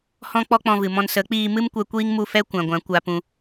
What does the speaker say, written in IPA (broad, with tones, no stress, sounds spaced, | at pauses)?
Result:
h ɔ̃˦ k͡p ɔ˦ k͡p ɔ̃˧ v ɨ˨ m ɔ̃˧ n s ə˨˦ k͡p iː˧ m ɨ˦ m kʷ ɛ˧ kʷ iː˦ ŋ m u˦˨ f ɛ˦ kʷ ã˨ ɡʷ ã˨˦ kʷ a˧ p ũ˧